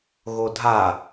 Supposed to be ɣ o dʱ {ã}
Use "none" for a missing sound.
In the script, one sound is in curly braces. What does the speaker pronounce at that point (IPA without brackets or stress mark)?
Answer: a